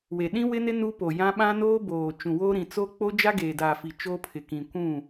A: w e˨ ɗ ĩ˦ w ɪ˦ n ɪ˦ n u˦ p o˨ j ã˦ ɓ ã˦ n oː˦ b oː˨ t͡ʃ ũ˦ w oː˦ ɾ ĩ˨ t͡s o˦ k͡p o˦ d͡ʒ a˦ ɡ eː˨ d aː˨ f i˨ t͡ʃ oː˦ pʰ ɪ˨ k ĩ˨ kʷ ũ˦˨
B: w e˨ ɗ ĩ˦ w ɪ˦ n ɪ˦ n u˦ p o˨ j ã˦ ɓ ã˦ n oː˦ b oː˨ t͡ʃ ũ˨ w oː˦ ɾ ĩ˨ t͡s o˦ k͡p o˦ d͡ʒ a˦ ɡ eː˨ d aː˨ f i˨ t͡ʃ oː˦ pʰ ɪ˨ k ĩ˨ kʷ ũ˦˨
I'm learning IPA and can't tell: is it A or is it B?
B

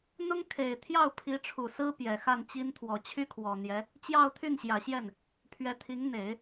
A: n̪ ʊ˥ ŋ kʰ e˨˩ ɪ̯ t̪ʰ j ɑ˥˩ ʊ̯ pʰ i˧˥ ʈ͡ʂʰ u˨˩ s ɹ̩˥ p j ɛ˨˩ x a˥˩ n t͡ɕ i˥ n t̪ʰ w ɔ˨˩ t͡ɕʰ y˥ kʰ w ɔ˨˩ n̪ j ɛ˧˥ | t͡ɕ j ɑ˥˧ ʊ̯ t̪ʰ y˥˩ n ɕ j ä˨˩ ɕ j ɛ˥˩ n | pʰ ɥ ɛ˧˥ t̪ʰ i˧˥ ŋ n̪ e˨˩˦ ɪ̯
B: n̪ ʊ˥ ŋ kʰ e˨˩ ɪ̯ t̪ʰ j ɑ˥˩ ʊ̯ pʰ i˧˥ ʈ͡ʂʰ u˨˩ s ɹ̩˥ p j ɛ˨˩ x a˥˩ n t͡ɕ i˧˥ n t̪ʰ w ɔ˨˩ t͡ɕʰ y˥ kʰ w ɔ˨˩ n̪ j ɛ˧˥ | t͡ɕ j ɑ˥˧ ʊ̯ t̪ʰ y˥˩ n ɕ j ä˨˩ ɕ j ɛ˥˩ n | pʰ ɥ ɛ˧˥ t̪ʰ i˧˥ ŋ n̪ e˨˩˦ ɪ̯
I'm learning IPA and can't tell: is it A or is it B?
A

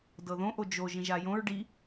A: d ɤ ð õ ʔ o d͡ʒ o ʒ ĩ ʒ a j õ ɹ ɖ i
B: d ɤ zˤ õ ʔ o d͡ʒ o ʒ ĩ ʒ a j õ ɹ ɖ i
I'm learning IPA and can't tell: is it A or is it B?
A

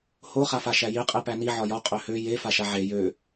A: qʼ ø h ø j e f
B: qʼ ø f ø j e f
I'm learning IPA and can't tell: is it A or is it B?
A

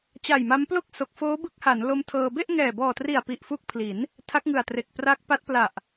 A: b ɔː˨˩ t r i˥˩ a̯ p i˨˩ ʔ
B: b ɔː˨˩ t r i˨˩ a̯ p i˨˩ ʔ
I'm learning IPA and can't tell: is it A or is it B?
B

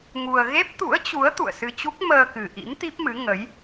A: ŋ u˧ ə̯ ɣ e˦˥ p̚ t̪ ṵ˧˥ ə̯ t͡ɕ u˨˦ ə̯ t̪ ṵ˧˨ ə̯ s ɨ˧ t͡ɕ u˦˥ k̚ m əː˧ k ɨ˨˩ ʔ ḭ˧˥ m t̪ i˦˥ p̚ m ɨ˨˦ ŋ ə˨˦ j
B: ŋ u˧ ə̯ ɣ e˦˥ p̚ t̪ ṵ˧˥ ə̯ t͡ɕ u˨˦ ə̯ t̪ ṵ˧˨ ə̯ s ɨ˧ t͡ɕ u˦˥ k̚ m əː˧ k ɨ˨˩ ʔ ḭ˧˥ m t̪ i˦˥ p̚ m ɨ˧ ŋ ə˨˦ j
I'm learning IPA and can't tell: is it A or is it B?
A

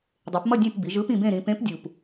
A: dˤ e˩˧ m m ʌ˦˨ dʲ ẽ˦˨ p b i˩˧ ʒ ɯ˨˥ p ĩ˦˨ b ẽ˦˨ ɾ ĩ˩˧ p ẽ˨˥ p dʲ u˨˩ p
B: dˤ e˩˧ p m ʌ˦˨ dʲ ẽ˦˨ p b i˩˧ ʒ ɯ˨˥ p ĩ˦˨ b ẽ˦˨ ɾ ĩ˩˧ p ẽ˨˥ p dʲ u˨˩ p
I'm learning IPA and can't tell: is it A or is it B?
B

